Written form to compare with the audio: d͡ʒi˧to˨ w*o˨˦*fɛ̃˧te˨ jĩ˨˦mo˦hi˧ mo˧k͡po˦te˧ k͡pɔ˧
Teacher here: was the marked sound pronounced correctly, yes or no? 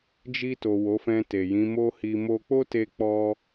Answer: yes